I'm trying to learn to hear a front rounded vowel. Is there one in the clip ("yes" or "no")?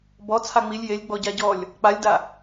no